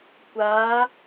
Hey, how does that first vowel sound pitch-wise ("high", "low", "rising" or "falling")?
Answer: rising